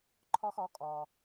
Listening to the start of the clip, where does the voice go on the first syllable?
high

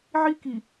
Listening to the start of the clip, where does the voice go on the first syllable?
high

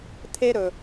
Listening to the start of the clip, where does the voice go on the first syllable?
high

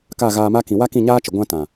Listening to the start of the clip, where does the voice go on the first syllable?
falling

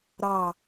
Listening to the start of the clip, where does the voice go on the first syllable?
low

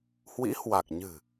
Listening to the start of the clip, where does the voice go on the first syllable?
rising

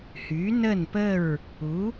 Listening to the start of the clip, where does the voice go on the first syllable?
rising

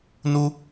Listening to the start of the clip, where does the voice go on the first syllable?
high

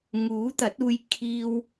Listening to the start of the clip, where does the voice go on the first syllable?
rising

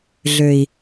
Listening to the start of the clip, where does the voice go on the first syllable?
low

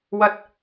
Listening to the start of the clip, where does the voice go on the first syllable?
high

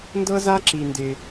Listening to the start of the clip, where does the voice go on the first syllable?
high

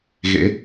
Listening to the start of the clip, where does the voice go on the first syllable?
rising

